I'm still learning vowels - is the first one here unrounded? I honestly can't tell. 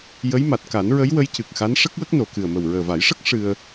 yes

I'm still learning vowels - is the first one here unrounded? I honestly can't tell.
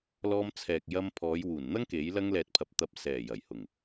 no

